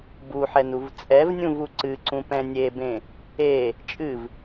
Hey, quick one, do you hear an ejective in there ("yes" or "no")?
yes